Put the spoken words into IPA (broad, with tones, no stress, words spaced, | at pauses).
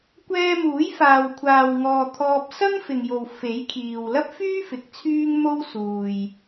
kʷɛː˧muː˨˥j faː˨wkʷʰaː˨wŋɔː˨ t̪ʰɔː˧p̚ sɐ˥ŋfɪ˨ŋjo˨w fe˨˥jkʰiː˨w lɐ˥p̚fyː˥ fɪ˨˥k̚t͡sʰyː˥ŋ mo˥wsuː˨j